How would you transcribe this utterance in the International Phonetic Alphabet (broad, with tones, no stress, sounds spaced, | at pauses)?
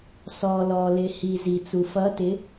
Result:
s ɔː˩ l ɔː˩ l ɪ˩ h i˩ z i˩ t͡s u˩ f ʌ˨˦ t ɪ˨˦